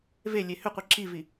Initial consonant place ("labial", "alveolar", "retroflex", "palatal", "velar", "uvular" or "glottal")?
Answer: labial